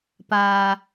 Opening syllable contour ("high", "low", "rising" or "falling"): low